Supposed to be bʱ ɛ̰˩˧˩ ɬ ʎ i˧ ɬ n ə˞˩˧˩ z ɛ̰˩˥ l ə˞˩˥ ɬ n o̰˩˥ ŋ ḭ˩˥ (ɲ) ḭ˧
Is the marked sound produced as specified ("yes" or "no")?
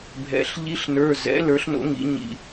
yes